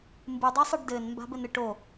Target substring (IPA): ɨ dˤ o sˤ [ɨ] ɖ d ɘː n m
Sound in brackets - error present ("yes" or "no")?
no